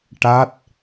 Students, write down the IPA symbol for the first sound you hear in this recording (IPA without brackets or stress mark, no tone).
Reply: ʈ